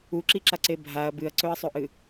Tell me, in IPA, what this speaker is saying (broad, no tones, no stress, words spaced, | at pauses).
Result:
uǁiǁaǀe bʱaɐ̯ bɨɐ̯ǀɵɐ̯sˤɵʔɨ